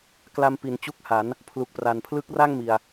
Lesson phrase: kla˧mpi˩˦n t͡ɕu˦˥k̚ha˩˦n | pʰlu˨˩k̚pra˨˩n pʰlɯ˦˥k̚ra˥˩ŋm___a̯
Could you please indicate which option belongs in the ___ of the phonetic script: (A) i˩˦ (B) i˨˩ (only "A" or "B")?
B